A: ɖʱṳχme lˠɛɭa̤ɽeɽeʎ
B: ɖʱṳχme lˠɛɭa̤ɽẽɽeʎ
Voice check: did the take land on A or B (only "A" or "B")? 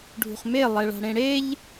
B